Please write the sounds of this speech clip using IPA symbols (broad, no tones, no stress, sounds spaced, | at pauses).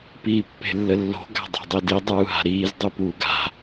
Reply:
p iː pː e̤ lː ə lː o̤ ɡ a̤ dˤ a̤ dˤ i d i dˤ uː ɦ a̤ ɾ iː z dˤ u p uː ɡ a̤